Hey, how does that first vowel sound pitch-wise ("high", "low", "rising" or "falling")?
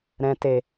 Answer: low